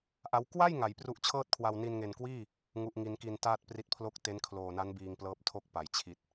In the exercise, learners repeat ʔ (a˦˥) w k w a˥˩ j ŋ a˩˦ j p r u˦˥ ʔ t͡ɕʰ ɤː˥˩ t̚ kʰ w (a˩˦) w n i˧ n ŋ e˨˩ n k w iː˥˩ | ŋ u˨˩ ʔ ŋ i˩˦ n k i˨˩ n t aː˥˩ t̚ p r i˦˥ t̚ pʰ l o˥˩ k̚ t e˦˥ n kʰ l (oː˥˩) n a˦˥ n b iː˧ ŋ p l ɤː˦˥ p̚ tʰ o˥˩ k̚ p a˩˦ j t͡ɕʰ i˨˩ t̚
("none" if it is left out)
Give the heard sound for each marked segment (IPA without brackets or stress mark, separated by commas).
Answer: a˦˥, a˧, oː˨˩